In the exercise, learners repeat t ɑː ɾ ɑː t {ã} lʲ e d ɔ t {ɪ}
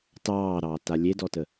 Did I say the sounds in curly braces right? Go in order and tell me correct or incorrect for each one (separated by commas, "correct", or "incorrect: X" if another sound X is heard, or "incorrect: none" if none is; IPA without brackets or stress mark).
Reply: incorrect: a, incorrect: ə